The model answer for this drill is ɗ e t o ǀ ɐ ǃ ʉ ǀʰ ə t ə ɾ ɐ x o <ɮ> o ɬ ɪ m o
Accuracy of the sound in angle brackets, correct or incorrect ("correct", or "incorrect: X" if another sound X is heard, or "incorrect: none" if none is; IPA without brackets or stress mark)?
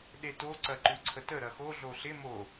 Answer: correct